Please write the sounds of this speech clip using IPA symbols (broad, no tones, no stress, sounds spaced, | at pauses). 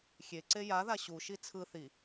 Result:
xʲ e ǀ e j a ð a ɕ u ʃ i t͡sʰ ɯ θ i